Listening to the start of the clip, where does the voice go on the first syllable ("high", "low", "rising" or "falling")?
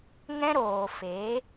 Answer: high